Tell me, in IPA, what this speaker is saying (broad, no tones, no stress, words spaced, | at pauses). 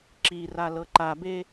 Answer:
ǁiralɤ ǃabe